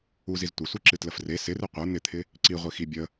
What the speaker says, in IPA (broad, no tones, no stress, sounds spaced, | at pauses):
u z i z tʷ ɪ sʷ i ǁ ɨ t l ə f r e s ɪ r ɨ qʷ ə˞ n̪ ɪ t̪ʰ ɪ | ǀ i ʁʷ i x i bʲ ə